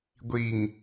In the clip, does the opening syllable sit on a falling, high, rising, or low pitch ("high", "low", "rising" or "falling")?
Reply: low